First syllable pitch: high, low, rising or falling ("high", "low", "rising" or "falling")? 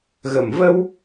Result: low